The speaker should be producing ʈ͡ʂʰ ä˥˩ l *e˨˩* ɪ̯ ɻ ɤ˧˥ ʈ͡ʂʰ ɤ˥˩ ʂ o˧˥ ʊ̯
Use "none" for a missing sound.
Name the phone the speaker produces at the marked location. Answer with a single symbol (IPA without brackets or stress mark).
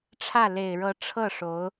e˨˩